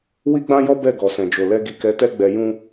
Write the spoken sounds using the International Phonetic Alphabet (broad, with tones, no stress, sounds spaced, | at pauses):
w i˦ ɡ͡b ã˦ j ɔ˦ b ɛ˦˨ ɡ ɔ˨ s ɛ̃˨ d͡ʒ o˨ l ɛ˧ ɡ i˨ k ɛ˨˦ t ɛ˦ ɡ͡b ɛ˧ j ũ˦